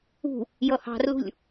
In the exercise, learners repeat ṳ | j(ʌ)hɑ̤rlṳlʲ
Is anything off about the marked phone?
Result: no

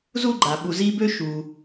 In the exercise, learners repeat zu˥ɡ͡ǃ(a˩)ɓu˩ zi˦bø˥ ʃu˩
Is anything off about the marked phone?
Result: no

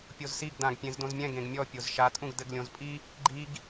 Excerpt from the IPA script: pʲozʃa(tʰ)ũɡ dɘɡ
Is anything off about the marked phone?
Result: yes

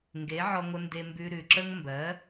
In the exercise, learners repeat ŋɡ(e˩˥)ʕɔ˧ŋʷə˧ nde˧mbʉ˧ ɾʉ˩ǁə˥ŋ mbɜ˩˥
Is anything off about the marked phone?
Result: no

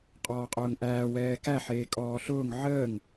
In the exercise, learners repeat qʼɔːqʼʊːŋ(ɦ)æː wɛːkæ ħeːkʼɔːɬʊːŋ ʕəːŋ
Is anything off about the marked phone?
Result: yes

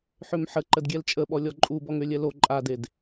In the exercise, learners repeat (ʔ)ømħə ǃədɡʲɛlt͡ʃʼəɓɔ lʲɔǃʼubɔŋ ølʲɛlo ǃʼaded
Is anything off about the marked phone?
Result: yes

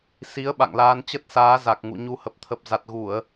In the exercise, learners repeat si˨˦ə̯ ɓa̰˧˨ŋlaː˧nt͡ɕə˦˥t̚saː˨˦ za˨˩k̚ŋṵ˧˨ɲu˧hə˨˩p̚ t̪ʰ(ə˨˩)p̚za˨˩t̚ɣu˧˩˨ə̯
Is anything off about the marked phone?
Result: no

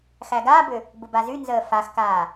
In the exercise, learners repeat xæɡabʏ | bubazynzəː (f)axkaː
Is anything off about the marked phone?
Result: no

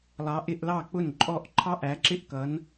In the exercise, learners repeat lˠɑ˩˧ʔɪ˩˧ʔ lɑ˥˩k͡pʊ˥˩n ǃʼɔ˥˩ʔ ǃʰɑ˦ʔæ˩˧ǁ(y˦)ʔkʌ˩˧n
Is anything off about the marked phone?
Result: yes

